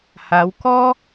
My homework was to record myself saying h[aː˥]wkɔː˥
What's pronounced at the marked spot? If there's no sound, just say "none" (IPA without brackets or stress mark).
aː˨˧